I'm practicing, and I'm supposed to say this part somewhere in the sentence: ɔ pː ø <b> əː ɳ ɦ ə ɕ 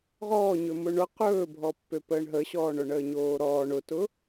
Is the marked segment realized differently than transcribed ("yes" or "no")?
yes